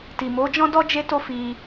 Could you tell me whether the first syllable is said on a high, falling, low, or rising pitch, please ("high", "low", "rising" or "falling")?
low